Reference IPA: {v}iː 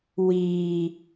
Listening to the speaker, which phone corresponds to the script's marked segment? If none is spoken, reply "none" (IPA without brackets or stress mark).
w